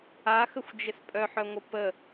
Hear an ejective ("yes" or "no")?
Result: yes